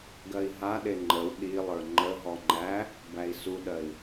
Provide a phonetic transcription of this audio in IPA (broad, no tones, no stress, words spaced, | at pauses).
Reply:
ɡɜi̯ɦaɗe ŋ͡ǃəw ɗilˠə˞ ŋ͡ǃəɦɔ ŋ͡ǃæ | bæi̯suɗɜi̯